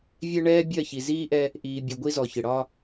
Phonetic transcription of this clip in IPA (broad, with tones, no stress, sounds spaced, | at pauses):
vʲ ɛ˦ ɳ ɛː˦ bʲ ɜ˦˨ ç i˨ z iː˦ ʔ ɛ˦ | ʔ iː˨ bʲ ʌ˨ ɡʷ i˦ z ɔ˨ ç ɪ˨ ɽ ɒ˦